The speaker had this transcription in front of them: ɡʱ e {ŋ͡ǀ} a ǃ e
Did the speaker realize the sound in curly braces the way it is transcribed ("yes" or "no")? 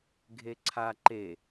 no